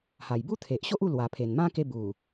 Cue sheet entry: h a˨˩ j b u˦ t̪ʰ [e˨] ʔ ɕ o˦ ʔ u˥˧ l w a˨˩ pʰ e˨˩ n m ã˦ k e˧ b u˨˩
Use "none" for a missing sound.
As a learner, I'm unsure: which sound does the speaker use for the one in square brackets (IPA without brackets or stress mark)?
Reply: e˨